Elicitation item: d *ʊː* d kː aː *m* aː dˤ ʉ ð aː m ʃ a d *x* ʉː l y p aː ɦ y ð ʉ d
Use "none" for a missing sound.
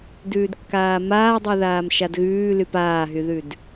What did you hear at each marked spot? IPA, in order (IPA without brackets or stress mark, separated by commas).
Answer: ʉː, m, ɣ